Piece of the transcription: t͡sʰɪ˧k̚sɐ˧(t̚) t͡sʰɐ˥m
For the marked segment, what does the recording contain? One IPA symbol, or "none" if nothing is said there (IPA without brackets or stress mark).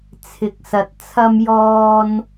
t̚